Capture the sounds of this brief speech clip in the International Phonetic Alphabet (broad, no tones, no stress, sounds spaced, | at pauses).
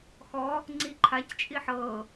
x ɔ | ŋ͡ǀ i ǃʰ a c t͡ʃʼ i ħ ɤ